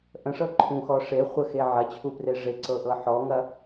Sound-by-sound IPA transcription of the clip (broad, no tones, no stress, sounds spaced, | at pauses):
ʔ ə̃ ʂ ɤ ǃʰ ũ x ɔ ʂ e χʷ ə x e ʕ ɐ t͡ɕʰ u p r e ʐ e ǀ ɤ ʔ ɤ ħ ɔ ŋ ɐ